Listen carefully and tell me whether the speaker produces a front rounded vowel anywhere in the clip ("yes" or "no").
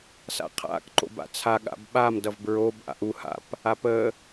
no